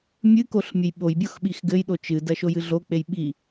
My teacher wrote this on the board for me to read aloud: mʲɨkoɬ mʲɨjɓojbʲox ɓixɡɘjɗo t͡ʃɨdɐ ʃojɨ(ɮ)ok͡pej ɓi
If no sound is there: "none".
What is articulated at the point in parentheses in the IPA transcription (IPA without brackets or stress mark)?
ɮ